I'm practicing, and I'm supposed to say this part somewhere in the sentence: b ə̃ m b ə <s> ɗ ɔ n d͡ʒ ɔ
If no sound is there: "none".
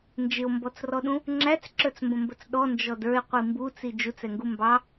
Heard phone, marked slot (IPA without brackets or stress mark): t͡s